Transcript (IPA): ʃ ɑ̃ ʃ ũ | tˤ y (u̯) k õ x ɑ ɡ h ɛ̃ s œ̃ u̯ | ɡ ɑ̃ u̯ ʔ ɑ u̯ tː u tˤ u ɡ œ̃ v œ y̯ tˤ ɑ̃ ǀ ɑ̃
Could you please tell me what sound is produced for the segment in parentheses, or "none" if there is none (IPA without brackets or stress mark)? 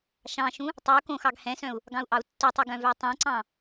u̯